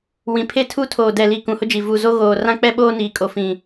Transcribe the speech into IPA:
w ĩ˨ pʰ e˦ tʰ u˦ tʰ oː˨ d ɛ˨ l i˨ k ũ˨ h ʊ˦ d͡ʒ i˨ v u˨ z o˦ ɣ oː˨ r ã˦ k͡p ɛ˦ ɓ oː˦ n iː˨ kʼ o˨ f ĩ˨

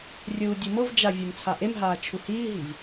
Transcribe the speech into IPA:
rʲ uː dʲ u m ɤ v d͡ʒ a vʲ ɤ m t͡sʰ a ʔ e m ɦ aː t͡ʃʰ u h iː ɦ i v

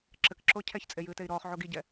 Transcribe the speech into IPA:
ǁ ɘ k ǁ o cʰ ɛ ç t͡sʼ e j ɨː t e i̯ ɾ ɔː χ ʕ o ɡ i ɟ ɛ

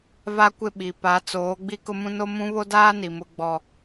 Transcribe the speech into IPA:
v a˦ kʷ ɪ˦˨ ɓ i˨ p a˨˦ t͡s oː˨˦ ɡ͡b i˦ k ʊ˦ m ũ˦ n o˦ m ũ˦ β o˦ d aː˦ n i˨ m ʊ˦ ɡ͡b ɔ˦

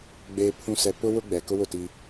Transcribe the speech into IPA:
ɡ͡b eː˨ pʰ ũ˨ s ɛ˨ p ʊ˦ w ʊ˦ ɡ͡b ɛ˨ k ʊ˦ w ʊ˦˨ t iː˦

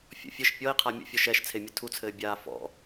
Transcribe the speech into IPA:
fʲ ɔ̰ fʲ ɘ ʃ pʲ ɔ i̯ qʰ a mʲ o̰ fʲ ɔ ʃ ɛ ʃ t͡sʰ e mʲ ɨ tʰ u t͡sʰ ɘː bʲ aː f ɔ̰

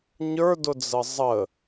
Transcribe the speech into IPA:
ɲ ə˞ d ʊ d͡z ə zˤ ə

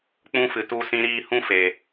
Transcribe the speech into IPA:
k͡p ũ˦ f ɨ˨ t u˧ s ĩ˧ ɾ iː˧ h ũ˦ f eː˨

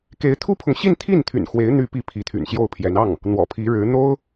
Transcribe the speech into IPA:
k e˧˥ ɪ̯ t̪ʰ u˥ pʰ ʊ˨ ŋ ɕ i˥˧ n t̪ʰ i˥˩ n t̪ʰ y̰˨˩ n x w e˧˥ ɪ̯ n̪ y˧˥ p i˧˥ pʰ i˧˥ t̪ʰ y̰˨˩ n ɕ j o˥˩ ʊ̯ pʰ j ɛ˧˥ n ɑ˥˩ ŋ | n̪ w ɔ̰˨˩ pʰ i˧˥ ɻ ɻ̩˧˥ n̪ o˥ ʊ̯

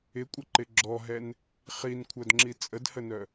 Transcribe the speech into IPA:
ɪ kʷʼ ə ǃ ɪ ɡ͡ǁ ɔ ɦ ɛ n | χ i n kʷʰ œ d ŋ͡ǁ i t͡sʼ ə d h ə n œ

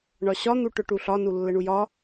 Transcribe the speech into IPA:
ɳ ɒ ɕ ɒ n̪ u ʈ ʊ ʈ u ɬ ɒ n u lː ə ɳ u j ɒ

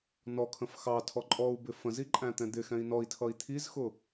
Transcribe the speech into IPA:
n ɔ kʰ ə̃ f x ɑ tʰ ɔ ǃʼ ɔ u̯ b ɪ f ə̃ z i ǃʼ æ̃ t̪ ɛ̃ d̪ ɪ x ɛ̃ i̯ n ɔ i̯ tʰ ʌ i̯ t̪ʰ i z x ʊ

